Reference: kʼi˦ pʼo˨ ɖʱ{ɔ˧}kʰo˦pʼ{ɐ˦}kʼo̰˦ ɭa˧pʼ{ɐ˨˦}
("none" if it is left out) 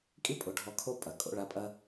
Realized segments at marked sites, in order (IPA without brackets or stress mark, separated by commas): ɔ˧, ɐ˨, ɐ˦